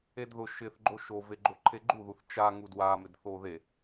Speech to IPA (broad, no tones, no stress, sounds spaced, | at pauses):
e d ð ʊ ʃ ɪ θ ɡ͡ǃ o ʃ o v e ɡ͡ǃ o ǃʰ e ɡ͡ǃ u ð u θ t͡ʃ a ŋ u d w a m ɪ d θ o ð e